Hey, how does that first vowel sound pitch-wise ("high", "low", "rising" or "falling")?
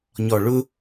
low